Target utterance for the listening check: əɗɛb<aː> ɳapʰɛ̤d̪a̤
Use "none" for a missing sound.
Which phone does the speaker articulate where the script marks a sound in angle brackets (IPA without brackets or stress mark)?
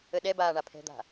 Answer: aː